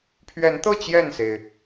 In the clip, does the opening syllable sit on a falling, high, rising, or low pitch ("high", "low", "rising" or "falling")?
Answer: rising